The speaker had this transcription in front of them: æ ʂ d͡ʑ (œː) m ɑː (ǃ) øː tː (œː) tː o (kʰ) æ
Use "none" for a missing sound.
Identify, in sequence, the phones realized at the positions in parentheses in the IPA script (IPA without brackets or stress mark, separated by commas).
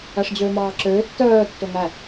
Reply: øː, ǁ, œː, ŋ